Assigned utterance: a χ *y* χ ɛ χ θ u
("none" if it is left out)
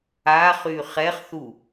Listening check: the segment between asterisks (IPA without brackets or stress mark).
y